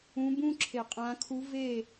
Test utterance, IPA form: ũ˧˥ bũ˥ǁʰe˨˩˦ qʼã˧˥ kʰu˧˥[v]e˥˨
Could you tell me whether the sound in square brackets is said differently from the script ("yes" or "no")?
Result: no